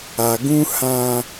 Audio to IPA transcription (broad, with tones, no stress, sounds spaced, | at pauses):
a˨ ɡ ũ˦ h ã˦